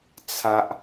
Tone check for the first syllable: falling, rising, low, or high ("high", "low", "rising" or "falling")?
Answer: high